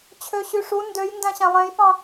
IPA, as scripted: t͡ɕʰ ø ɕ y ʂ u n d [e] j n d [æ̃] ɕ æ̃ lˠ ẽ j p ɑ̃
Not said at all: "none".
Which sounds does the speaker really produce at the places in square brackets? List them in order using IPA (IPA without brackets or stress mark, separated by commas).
ø, æ̃